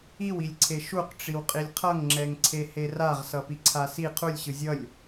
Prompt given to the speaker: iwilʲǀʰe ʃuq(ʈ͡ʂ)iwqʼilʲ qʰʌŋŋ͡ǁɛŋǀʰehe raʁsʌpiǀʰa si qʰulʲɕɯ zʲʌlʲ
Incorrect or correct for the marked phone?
correct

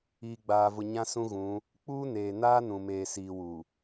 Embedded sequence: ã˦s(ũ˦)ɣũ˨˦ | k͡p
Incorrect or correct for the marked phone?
correct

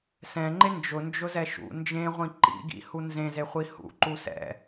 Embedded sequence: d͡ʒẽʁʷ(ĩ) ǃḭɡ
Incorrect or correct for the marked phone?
correct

